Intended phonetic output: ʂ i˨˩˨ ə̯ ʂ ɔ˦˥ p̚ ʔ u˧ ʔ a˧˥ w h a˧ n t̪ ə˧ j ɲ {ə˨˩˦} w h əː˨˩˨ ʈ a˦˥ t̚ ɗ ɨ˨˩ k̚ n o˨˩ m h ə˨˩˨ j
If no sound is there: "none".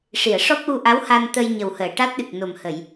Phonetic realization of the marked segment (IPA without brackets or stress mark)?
ə˨˩